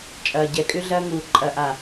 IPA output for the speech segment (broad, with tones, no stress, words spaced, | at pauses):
t͡ʃʼɐː˨ɟɛ˨kʼʏ˦ ɮɐː˦ŋuː˨ ǃʼɐ˨ʔa˨